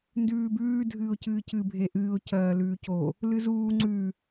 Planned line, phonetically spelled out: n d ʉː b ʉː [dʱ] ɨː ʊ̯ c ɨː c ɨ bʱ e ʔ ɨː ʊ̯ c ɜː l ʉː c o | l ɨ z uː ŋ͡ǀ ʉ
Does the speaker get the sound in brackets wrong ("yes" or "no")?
no